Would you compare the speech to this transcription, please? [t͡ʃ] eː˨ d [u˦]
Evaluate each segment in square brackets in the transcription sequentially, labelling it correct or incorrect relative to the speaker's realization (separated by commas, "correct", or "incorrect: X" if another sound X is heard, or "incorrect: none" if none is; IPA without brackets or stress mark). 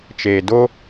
correct, incorrect: o˦